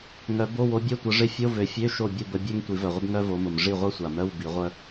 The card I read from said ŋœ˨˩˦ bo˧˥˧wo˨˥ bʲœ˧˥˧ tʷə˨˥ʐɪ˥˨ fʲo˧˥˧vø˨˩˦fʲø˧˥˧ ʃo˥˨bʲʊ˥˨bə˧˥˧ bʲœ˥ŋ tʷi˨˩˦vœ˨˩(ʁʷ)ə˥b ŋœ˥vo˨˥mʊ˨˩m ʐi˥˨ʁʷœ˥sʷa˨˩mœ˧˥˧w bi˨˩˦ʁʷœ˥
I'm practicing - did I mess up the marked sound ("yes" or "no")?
no